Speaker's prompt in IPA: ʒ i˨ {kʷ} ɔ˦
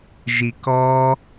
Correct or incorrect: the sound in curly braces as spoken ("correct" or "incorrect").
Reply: incorrect